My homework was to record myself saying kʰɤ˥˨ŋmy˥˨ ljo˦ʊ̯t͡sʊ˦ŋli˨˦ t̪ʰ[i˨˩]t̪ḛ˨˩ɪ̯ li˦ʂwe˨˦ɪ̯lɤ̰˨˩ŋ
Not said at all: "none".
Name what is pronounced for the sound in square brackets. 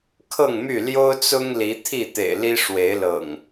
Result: i˥˨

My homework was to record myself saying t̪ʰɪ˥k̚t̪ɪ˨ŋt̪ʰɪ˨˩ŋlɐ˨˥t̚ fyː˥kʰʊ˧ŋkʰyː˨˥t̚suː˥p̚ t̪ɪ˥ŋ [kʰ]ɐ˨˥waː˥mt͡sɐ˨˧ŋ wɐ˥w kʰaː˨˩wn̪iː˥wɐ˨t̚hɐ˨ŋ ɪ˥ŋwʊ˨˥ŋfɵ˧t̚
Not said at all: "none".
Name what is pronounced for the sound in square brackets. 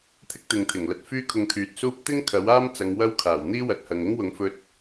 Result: kʰ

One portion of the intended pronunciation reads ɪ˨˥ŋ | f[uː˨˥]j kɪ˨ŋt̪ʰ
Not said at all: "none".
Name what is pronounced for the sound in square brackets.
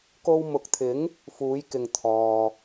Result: uː˨˥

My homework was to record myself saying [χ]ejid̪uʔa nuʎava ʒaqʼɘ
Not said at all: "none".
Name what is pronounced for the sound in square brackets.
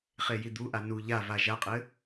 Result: χ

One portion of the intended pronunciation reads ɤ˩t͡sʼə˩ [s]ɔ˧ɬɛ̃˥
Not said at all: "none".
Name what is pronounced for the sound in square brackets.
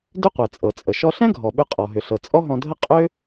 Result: ʃ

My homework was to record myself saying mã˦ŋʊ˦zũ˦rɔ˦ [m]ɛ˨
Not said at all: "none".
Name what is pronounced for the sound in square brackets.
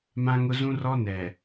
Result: n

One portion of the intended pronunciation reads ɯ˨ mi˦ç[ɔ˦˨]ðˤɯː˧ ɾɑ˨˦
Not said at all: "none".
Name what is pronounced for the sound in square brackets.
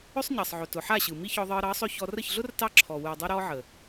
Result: ɔ˧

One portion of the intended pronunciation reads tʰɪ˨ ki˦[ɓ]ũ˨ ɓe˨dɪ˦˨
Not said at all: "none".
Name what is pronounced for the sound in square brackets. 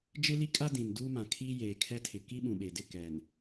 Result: ɓ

